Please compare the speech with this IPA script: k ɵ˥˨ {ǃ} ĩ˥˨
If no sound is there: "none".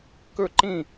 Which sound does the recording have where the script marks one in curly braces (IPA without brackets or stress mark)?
ǃ